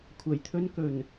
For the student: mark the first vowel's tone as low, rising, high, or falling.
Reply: low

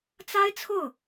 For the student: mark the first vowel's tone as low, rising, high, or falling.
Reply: high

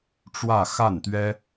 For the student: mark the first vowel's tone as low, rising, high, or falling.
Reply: falling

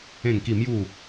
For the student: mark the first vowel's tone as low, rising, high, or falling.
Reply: falling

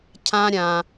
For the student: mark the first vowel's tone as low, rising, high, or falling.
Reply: high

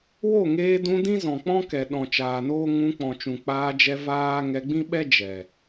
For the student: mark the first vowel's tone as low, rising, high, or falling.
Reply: falling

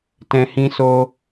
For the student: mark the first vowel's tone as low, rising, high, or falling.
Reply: low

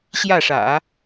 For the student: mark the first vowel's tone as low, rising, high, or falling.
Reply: falling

